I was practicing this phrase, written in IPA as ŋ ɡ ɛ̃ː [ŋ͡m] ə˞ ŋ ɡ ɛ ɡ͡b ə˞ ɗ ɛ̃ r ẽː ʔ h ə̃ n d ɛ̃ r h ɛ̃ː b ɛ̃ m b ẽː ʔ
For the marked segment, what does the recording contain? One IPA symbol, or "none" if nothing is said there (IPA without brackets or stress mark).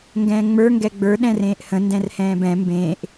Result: ŋ͡m